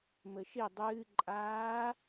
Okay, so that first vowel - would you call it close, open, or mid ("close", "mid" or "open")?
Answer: mid